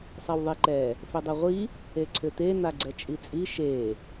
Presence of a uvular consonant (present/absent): present